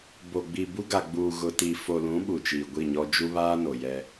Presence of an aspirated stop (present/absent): absent